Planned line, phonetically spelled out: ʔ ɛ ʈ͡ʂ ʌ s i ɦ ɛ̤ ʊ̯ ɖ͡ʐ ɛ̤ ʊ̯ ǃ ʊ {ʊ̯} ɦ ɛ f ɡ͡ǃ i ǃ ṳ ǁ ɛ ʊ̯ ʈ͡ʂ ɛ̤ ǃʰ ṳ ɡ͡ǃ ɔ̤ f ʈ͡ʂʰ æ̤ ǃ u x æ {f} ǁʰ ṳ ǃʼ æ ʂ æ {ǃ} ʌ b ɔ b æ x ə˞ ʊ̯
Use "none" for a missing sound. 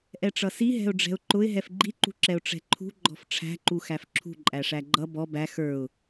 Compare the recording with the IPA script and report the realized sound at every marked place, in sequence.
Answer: ɪ̯, f, ɡ͡ǃ

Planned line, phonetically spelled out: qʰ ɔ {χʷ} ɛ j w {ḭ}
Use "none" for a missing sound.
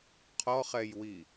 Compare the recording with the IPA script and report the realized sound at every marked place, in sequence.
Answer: χ, i

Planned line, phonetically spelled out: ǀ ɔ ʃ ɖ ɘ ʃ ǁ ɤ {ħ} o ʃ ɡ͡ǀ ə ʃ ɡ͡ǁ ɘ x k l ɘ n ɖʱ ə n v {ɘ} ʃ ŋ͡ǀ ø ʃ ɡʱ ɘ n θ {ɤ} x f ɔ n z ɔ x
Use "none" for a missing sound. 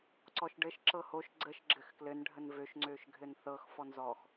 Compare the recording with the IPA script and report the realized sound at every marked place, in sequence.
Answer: h, ø, ɤ

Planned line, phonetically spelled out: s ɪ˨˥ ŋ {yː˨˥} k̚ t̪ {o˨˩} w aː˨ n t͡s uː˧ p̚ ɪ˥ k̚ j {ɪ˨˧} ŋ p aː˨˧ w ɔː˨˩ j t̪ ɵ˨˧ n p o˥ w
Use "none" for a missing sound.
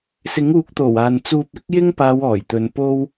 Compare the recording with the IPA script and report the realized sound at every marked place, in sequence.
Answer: uː˨˥, o˨˩, ɪ˥

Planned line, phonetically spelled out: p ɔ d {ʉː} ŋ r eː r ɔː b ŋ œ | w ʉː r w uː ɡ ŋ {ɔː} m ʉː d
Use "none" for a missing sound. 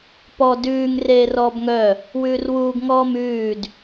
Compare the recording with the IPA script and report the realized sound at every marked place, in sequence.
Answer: ʉː, ɔː

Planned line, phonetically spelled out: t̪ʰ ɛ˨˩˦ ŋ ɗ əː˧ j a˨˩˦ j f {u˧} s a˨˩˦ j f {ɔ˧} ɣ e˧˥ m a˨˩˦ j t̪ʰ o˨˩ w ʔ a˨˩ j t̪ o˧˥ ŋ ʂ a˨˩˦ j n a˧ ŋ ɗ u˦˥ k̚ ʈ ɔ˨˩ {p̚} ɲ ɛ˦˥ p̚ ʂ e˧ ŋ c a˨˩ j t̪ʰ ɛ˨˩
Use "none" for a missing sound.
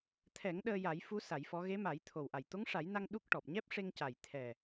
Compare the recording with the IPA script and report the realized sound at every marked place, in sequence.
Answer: u˧˥, ɔ˧˥, p̚

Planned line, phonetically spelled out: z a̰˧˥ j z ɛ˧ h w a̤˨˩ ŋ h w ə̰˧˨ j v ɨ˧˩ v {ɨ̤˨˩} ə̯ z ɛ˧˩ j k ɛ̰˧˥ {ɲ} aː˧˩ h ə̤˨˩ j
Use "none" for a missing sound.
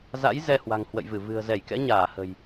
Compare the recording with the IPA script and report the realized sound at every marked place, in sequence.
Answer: ɨ̤˨˩, ɲ

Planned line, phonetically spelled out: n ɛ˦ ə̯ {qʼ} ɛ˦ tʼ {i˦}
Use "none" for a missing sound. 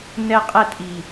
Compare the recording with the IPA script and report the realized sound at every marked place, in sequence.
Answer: qʼ, i˨

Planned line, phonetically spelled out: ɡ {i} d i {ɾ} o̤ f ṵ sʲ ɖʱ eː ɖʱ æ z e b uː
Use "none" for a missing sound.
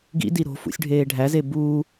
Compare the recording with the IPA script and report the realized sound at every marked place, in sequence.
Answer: ḭ, ɾ

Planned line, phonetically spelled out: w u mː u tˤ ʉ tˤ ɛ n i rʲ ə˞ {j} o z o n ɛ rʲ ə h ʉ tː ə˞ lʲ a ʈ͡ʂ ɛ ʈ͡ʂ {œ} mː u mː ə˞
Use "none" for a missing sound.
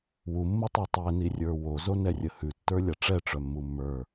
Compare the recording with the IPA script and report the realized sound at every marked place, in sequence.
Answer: w, œ

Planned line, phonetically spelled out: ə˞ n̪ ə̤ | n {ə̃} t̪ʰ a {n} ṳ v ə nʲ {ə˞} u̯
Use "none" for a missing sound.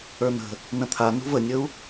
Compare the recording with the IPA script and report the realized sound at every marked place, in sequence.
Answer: ə̃, n, ə

